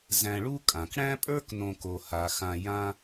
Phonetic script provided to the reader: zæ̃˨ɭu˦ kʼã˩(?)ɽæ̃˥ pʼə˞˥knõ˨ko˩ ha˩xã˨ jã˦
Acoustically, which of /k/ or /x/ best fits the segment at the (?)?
k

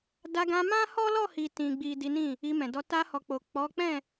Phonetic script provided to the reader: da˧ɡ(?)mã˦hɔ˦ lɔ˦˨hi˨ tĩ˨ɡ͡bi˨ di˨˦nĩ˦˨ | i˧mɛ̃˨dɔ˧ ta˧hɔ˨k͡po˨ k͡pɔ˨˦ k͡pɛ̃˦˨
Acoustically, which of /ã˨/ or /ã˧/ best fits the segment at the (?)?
ã˧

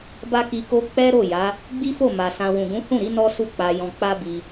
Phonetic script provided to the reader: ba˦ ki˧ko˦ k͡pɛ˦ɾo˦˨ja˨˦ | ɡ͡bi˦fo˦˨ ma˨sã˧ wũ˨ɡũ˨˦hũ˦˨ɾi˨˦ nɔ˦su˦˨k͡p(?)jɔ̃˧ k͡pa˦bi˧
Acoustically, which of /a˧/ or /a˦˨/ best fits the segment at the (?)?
a˧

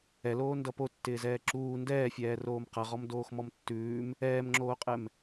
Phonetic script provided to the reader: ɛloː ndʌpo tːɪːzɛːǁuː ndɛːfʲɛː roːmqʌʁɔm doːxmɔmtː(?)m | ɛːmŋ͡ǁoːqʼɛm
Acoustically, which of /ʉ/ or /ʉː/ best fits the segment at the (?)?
ʉː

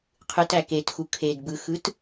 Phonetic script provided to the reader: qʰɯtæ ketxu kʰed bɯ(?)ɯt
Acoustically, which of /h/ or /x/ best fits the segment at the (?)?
x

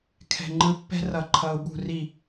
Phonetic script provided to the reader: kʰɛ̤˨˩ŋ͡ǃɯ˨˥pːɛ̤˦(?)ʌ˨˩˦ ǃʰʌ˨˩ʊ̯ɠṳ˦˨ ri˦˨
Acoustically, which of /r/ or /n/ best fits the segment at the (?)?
r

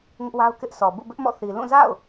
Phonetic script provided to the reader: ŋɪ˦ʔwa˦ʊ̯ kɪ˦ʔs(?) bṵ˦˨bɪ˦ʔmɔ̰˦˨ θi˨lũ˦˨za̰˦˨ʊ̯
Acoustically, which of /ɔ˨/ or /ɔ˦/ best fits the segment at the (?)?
ɔ˨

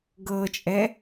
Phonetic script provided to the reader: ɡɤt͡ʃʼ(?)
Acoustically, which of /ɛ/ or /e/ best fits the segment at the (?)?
ɛ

